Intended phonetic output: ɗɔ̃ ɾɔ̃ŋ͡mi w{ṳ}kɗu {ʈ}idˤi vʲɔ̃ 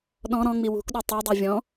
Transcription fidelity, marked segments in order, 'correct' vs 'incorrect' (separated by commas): correct, incorrect